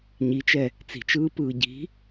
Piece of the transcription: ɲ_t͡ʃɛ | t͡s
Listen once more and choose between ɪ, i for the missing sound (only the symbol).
i